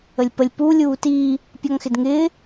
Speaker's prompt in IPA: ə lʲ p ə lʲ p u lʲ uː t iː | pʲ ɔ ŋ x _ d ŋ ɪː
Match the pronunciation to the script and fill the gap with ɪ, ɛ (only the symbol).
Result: ɪ